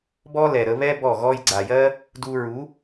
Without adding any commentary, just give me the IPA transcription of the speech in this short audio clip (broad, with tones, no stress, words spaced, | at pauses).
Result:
bɔ˦lɛ˨ ɾə˧βɛ˦ bɔ˦˨ɣɔ˦j ɡ͡ǀa˨jɜ˦ | du˧ɹu˨˦